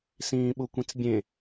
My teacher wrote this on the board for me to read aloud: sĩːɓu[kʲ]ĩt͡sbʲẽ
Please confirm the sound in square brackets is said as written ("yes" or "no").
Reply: no